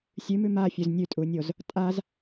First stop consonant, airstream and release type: ejective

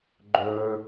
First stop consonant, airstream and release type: click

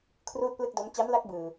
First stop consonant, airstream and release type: aspirated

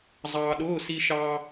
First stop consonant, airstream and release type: implosive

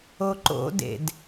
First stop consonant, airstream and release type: click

